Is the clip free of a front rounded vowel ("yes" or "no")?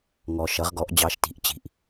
yes